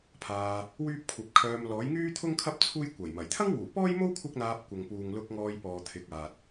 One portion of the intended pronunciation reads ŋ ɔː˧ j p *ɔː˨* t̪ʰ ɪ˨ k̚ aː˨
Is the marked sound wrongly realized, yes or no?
no